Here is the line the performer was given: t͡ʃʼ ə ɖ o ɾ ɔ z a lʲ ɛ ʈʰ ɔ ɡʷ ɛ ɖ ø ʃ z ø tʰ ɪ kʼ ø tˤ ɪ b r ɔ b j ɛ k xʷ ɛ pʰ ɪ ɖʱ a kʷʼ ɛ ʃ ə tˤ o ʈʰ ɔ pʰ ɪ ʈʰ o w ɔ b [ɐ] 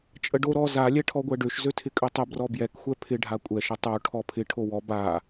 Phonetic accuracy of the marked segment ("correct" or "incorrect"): incorrect